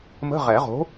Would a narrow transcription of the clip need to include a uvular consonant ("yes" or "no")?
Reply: yes